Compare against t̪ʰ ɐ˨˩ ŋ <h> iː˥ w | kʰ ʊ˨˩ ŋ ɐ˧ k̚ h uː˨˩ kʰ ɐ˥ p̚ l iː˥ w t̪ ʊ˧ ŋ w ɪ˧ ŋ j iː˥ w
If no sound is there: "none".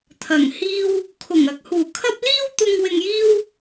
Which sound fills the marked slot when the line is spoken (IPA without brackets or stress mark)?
h